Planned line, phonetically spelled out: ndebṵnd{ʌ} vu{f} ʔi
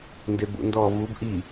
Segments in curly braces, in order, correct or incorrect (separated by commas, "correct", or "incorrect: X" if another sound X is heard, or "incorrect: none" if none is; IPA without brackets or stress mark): incorrect: ɔ, incorrect: b